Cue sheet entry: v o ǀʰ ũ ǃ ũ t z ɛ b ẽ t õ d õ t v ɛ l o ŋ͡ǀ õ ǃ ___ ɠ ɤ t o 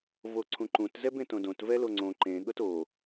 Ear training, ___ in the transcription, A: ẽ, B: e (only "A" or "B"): A